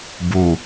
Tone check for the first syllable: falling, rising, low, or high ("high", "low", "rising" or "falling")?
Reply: low